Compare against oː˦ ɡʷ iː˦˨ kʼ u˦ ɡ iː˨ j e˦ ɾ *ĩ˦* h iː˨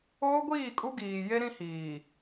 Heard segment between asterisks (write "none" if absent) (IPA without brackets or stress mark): ĩ˦